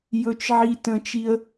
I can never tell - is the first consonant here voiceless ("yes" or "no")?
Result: no